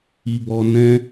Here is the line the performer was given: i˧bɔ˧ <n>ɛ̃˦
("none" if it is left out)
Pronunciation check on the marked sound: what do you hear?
n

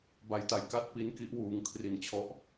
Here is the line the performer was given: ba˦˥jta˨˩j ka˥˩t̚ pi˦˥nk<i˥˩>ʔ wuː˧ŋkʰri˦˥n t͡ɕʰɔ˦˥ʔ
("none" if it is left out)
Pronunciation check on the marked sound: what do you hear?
i˦˥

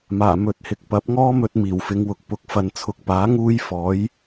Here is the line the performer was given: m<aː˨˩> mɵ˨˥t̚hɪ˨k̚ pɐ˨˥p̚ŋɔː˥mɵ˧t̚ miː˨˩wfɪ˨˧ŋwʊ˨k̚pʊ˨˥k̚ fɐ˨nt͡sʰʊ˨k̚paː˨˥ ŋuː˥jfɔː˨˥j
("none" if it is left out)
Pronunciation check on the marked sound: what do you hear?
aː˨˩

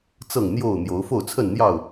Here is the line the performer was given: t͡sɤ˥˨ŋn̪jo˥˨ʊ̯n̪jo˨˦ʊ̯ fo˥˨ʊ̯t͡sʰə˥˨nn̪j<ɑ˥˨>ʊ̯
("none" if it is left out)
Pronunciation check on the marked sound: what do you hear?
ɑ˥˨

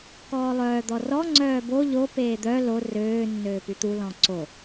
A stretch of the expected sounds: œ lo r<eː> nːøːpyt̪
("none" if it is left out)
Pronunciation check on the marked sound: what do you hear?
øː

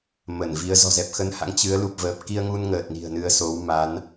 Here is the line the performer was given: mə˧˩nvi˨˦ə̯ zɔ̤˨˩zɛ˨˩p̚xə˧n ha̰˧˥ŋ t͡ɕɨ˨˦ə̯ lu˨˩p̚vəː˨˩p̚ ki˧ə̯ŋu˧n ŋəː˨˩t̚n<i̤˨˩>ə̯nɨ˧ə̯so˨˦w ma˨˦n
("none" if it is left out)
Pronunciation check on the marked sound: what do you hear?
i̤˨˩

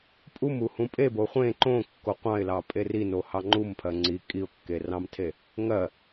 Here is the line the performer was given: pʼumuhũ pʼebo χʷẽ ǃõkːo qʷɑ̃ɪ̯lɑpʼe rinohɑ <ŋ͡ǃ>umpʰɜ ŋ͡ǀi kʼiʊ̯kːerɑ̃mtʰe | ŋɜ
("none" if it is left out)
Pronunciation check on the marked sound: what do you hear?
ŋ͡ǃ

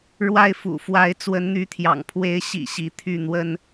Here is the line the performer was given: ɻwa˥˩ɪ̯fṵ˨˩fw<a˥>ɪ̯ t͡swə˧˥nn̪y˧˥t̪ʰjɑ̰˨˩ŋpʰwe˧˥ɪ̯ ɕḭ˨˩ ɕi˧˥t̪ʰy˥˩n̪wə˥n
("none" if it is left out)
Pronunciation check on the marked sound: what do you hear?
a˧˥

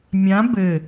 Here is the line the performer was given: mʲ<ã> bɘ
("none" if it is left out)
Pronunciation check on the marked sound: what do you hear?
ã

